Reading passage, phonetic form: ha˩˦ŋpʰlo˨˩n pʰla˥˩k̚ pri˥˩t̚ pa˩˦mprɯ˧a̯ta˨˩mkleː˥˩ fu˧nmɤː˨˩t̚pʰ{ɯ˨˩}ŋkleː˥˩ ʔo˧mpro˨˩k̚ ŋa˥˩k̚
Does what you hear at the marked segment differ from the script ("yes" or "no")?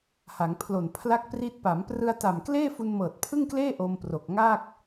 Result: yes